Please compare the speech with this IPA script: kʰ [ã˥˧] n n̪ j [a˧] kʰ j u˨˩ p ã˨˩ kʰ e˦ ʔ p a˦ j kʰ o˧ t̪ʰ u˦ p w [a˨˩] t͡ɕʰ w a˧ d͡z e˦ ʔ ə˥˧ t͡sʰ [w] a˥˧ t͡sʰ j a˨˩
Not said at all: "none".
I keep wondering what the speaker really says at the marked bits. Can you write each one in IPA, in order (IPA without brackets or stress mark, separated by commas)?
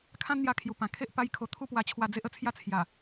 ã˦, a˧, a˧, j